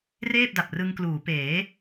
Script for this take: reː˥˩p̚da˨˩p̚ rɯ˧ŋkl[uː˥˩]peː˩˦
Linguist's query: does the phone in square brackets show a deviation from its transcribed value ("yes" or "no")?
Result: yes